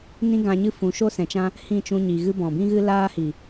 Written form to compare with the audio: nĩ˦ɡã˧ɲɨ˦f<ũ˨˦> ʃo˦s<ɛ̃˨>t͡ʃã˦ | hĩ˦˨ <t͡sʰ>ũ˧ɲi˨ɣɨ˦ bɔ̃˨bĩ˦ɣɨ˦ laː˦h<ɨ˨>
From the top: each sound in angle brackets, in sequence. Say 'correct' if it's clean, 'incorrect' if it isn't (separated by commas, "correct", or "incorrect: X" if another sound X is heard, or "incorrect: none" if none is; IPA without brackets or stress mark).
correct, correct, incorrect: t͡ʃ, incorrect: i˨